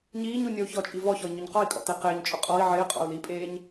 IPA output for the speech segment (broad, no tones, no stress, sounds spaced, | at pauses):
ɲ iː ɲ u nʲ ɔ u̯ ç ɔ t͡ʃʼ i v ɔ ç ɔ i̯ ɲ ʊ ɲ q ɔ i̯ kʼ ɔ̰ t e q ɪː ɲ t͡ʃʼ ʊ qʼ ɔ i̯ ʕ ɪː qʼ ɔ̰ u̯ l i pʼ eː ɲ